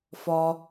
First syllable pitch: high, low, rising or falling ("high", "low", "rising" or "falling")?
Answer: low